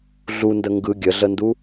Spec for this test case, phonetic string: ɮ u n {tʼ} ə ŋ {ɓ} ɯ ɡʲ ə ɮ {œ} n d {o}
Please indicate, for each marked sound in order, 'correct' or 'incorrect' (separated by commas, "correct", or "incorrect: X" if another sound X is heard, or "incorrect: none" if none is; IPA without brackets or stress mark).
incorrect: d, incorrect: ɡ, incorrect: ə, incorrect: u